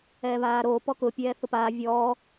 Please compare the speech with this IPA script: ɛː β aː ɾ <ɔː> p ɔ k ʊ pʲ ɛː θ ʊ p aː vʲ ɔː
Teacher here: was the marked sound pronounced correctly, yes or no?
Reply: no